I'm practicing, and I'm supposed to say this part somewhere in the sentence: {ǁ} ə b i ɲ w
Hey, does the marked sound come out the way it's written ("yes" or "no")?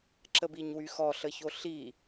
yes